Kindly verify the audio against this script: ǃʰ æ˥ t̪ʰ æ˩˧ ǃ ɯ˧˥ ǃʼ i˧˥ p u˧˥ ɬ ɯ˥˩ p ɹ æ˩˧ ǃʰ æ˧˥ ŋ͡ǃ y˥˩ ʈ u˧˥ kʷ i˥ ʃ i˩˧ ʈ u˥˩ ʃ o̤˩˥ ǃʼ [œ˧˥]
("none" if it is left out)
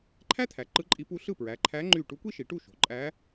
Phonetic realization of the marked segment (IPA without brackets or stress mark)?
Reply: æ˧˥